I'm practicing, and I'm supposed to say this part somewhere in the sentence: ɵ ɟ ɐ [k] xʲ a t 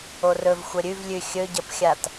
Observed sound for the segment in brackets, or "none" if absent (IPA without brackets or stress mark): p